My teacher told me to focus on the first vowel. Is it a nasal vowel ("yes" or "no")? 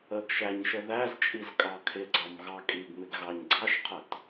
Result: no